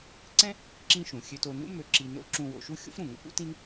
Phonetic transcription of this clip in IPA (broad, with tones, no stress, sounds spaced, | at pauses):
ǀ ɛ̃˥ | ǁ ĩ˧ ʃ ũ˩ xʲ ø˧ t o˧ n ṵ˥ m ø˧ ǁ i˧ n o̰˥ ǁ ũ˧ w o̰˧ ʃ u˥ xʲ o̰˥ f ɾ ũ˩ ŋ ə̰˥ p ṵ˥ t ĩ˥ n